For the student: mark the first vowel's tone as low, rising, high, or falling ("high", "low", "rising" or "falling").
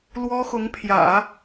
high